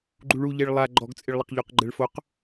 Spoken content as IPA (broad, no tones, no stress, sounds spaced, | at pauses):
ɡ͡ǃ u ɭ u ʎ e ɭ lˠ a ɡ͡ǃ ɔ ɡ t͡sʼ ɪ ɭ lˠ ɪ q ʎ o q ɡ͡ǃ ɛ ɭ f o q